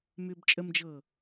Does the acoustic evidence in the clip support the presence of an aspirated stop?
no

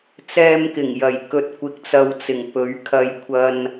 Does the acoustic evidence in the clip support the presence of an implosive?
no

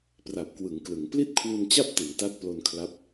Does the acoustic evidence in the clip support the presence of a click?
no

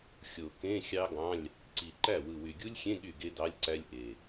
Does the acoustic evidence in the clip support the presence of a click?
yes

